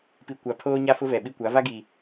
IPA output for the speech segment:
p i˨ kʷ a˨ pʰ oː˦ ɲ a˦ f ʊ˦ v ɛ˨ ɓ i˦ kʷ a˨˦ v a˦ ɡ i˨

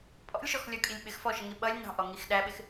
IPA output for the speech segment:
pʼ ɔ̰ lʲ ʃ ɔ x lʲ ɔ kʼ i lʲ ɓ ɪ x f ɔ ʃ ə ŋ i ɓ ʌ lʲ n ɑ̤ ʔ ɔ ŋ i x ɗ æ ɓ ɪ x

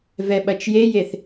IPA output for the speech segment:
v ɛ ɓ ɐ t͡ʃ j e j e θ

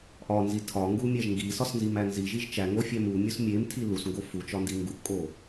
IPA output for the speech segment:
ʔ ɒ n z i tʰ ɒ ŋ ɡ u mʲ æ ʒ ŋ ɡ i s ɒ s n z i m æ n z i ʒ i ʒ t͡ʃ æ ŋ o fʲ æ m u mʲ u s mʲ e m tʰ i l u s ŋ ɡ o f u t͡ʃ ɒ n d i ŋ ɡ u ʔ kʼ o

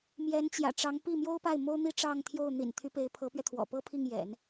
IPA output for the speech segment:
m j ɛ˧˥ n t͡ɕ j ä̰˨˩ ʈ͡ʂ ɑ˧˥ ŋ p i˥˩ m j o˥ ʊ̯ p a˥˩ ɪ̯ m o˥ ʊ̯ n̪ i˥ ʈ͡ʂ ɑ˥˧ ŋ t̪ʰ j o˥˩ ʊ̯ n̪ ḭ˨˩ n t̪ʰ y˧˥ p e˧˥ ɪ̯ pʰ ɤ˧˥ p ɥ ɛ˧ t̪ʰ w ɔ̰˨˩ p ɤ˥ pʰ i˥˩ ŋ j ɛ̰˨˩˦ n

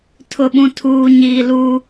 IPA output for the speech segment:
tʰ ʊ˨ ɓ ũ˨ tʰ uː˨ ɲ iː˨ l u˦

